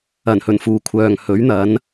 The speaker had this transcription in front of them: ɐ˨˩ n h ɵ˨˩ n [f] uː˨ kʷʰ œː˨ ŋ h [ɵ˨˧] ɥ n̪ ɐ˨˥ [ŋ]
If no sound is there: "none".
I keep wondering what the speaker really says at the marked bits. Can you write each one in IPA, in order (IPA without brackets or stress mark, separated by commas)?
f, ɵ˨˥, n